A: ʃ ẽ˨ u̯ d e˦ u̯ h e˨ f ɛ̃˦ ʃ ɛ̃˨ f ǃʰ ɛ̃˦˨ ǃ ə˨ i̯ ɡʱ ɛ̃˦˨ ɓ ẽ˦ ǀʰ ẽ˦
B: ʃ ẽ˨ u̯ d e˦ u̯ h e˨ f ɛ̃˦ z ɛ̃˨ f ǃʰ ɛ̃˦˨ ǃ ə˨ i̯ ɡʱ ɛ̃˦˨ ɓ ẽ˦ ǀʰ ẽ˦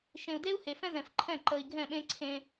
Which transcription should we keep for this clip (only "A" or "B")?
B